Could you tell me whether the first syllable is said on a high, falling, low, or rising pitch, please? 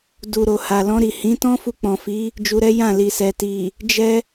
low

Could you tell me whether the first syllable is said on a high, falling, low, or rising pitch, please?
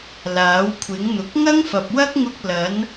rising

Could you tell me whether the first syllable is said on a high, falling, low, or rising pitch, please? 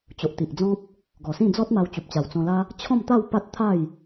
low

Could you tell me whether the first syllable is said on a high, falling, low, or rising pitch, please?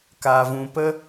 low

